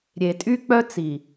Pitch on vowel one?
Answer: low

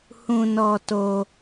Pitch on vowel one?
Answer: low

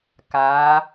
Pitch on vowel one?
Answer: rising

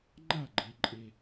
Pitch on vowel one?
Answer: falling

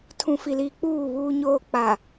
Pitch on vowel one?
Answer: low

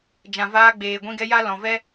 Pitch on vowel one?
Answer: low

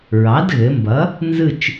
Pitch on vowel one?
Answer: rising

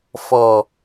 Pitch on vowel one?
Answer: low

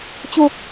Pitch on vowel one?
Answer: low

